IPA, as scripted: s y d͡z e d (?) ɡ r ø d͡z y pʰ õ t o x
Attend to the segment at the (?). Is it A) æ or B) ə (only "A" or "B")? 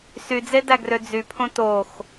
A